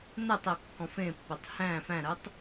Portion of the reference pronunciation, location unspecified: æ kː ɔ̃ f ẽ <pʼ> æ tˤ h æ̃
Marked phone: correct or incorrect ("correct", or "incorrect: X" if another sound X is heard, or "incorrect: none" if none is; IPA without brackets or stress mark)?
incorrect: pː